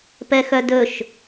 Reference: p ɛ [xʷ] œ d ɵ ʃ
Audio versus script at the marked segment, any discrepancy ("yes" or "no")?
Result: yes